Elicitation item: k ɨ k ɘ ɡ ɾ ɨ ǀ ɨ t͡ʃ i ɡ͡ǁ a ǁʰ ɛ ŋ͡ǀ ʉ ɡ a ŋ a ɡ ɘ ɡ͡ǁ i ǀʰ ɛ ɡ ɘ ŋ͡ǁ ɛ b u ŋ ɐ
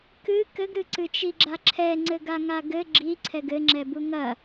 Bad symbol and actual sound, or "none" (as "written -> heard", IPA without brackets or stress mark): ʉ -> ɘ